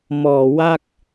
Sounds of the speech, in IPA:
mɔː˨˩wa˥˩k̚

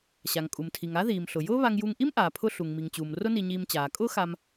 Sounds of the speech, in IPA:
ɕa˩ŋkʼu˩mtʰi˩ŋa˥ ðiː˩m ɬʊ˩jʊː˥βa˧ŋju˧ŋ ʔi˥mʔaː˩pʰʊ˧ ɬu˩ŋmi˩ŋt͡ɕuː˩m rʊ˥ni˧ɲiː˧m t͡ɕaː˩kʼʊː˥xa˧m

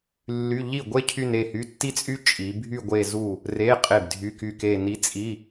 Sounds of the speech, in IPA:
lːy˧˥˧ ʎi˥˩ɡʷe˥ cʰy˥˧ne˥˩hy˧˥˧ tːi˥t͡sʼy˥ t͡ʃʼi˩˧bʱy˥˧ ɡʷe˥˧zu˥˩ | re˧˥˧ qʼe˥˩bdʱy˧˥˧ky˥˩ke˥˧ ni˧˥t͡sʼi˧˥˧

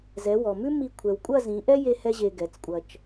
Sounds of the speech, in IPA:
zɛ˩˧wɔ˩mʉ˥mi˧ kʷʰɛ˩wkʷʼɐ˥˧zĩ˩˧ʔɛ˥ je˧hɛ˧ ʑe˧ɡɛ˩˧t͡skʷʼɐ˧t͡ʃ

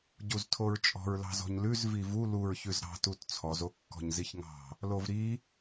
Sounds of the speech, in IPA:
ɟuztʰoɹt͡ʃʼɔ̤ɹ lɑ̤zɔ̤ɲlʉz vivu luɹçʉz ɾɑ̤tut t͡sʰɔzo kːɔ̤ɲziçŋɑ̤ | lovɾi

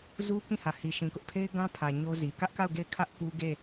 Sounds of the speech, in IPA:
zu˦ kĩ˦˨hä˨hi˨ ʃĩ˨kʊ˦ʔ pʰe˦ɪ̯ɡã˦pʰä˨ ɲo˦zi˨ kä˦ʔka˦˨ʊ̯ ɡe˦˨ɪ̯kʰä˦ʔ ku˦ ɡe˦˨

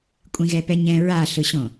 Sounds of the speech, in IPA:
kʷʼĩɣɛpɛɲɛ̃ ɹaɬɯɕõ

